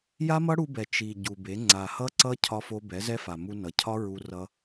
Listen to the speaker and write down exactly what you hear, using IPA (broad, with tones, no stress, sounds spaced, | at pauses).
j a˦ m ʌ˦ ɽ u˧ b ɛ˨ t͡ʃ i˨ ɟ u˨ b e˨˦ ŋ͡ǀ a˨ h ʌ˦ ǀ ʌ˦ cʰ ɒ˦ f o˦ b ɛ˨˦ z ɛ˦ f a˨ m u˧ n ʌ˨ cʰ ɒ˦ ɹ u˧ r ʌ˦